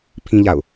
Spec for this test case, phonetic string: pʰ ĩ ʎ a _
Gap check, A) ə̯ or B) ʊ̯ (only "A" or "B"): B